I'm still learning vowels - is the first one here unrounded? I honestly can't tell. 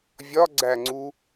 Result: no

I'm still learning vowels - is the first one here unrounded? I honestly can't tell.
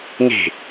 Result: yes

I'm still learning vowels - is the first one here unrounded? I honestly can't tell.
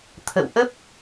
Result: yes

